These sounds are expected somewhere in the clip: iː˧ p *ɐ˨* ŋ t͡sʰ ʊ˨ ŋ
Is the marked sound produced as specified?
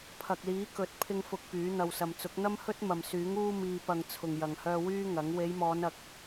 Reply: yes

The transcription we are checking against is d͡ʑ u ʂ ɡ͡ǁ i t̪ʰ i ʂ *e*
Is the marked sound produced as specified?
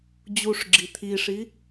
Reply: no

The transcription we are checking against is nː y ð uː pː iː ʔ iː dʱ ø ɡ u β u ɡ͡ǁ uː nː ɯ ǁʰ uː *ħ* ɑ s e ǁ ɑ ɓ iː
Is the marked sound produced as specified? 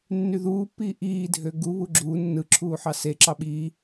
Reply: yes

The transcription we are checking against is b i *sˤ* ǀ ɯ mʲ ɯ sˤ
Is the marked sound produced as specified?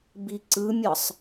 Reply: no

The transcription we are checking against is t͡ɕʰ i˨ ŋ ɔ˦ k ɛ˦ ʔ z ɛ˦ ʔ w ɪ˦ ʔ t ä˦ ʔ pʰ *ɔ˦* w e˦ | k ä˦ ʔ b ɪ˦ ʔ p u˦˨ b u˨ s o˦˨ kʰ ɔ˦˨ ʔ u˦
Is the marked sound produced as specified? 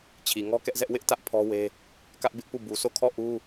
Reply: yes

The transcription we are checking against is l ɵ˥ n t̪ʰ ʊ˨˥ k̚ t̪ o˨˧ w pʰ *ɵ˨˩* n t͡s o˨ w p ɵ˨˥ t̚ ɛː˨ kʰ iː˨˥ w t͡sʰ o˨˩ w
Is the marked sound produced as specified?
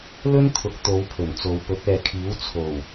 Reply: yes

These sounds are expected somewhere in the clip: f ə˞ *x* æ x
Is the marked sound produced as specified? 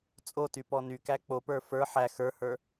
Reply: no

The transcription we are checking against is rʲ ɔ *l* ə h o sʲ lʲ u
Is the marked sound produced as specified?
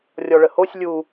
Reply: no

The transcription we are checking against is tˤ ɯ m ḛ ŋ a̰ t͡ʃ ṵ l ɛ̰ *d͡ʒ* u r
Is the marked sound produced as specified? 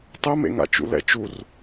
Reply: no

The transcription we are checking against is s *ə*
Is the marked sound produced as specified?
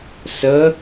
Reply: yes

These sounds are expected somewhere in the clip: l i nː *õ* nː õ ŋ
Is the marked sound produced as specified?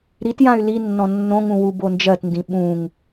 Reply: no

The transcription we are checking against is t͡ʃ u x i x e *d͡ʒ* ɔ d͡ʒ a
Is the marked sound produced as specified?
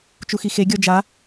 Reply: no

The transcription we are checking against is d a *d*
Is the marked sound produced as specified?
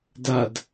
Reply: yes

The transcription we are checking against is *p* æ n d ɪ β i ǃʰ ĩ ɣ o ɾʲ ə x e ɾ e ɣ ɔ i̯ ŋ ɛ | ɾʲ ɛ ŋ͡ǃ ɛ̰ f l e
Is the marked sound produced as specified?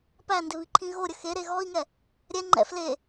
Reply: yes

